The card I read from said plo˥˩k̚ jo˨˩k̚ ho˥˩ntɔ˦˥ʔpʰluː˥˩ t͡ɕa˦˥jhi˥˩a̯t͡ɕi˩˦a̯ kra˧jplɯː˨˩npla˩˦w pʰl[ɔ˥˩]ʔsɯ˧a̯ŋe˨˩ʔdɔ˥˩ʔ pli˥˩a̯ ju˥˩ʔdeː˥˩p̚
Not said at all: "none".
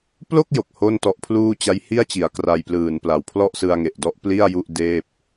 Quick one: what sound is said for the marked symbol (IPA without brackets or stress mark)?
ɔ˥˩